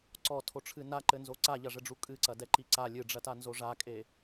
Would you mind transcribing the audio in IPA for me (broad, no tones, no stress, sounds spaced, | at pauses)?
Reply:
ǀ ɔ tʰ o ʈ͡ʂʰ ɨ n a ǃ ɘ n z o ǀ a ʎ ɐ ʐ ɘ ɖ͡ʐ u kʼ ɨ ǀ ɐ d ɛ ǃ i ǀ a lʲ ɨ ɖ͡ʐ ɐ t a n z o ʐ a kʼ e